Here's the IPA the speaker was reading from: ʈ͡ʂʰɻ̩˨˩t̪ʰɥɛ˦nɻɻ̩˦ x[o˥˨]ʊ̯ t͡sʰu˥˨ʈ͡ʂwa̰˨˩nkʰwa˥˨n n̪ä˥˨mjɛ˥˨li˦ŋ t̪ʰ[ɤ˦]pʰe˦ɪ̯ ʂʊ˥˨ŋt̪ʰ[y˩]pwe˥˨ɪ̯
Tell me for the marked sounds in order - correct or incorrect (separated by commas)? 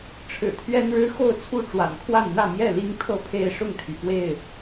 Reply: correct, correct, correct